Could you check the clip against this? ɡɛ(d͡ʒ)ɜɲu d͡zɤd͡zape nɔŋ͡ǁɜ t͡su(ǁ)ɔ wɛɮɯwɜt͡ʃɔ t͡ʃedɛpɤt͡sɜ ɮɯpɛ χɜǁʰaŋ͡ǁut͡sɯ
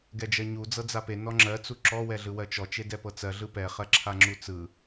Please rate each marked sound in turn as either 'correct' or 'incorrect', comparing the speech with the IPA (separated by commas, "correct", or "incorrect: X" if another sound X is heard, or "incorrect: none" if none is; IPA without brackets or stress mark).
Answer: correct, correct